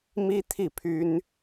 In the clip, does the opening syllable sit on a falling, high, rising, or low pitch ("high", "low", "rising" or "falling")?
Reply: high